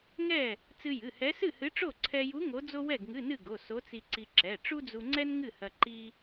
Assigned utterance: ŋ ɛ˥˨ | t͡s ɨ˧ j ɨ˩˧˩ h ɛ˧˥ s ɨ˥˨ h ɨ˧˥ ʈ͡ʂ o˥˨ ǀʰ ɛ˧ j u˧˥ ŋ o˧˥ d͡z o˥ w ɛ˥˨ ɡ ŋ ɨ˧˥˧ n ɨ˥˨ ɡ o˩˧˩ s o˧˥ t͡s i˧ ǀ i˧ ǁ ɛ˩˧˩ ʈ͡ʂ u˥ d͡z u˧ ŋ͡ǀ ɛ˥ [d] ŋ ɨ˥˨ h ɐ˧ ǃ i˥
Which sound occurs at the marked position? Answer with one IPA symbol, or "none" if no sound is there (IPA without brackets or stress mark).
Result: n